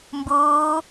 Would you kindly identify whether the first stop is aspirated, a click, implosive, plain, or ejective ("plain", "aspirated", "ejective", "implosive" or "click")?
plain